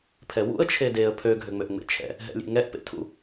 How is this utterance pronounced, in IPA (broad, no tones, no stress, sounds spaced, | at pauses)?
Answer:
pʰ ɛ w ṵ ə̯ t͡ʃʰ e d e ə̯ pʰ ø ɡʱ ø ŋ͡m ø ʔ ŋ͡m ḛ t͡ʃʰ ɛ̰ | ɦ ɛ̰ lʲ ḛ ŋ ɛ ʔ p ḛ tʰ ṵ